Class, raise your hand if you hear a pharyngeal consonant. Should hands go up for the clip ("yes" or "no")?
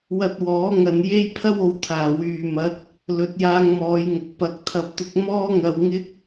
no